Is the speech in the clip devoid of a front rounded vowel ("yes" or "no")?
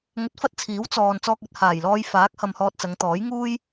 yes